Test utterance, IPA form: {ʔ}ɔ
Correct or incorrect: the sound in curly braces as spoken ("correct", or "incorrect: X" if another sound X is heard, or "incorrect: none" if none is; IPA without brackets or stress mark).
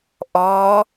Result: correct